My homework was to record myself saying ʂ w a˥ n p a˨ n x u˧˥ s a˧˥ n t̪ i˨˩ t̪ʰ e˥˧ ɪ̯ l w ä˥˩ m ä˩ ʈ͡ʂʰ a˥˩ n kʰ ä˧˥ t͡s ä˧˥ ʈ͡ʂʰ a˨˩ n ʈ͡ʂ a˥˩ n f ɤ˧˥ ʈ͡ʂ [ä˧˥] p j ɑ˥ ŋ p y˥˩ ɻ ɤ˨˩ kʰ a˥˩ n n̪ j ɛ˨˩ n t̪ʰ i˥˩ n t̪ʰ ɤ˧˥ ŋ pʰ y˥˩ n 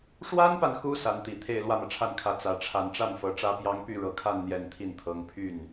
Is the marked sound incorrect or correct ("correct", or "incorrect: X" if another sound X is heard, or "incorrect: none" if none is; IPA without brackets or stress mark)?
incorrect: ä˥